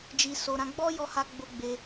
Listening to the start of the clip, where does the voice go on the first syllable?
low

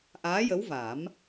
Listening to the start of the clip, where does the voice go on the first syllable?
rising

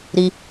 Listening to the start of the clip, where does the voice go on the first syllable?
high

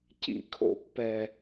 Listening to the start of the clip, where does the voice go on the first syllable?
falling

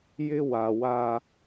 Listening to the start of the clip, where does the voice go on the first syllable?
high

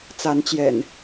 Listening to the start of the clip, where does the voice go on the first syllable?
rising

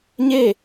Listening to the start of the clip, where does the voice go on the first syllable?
falling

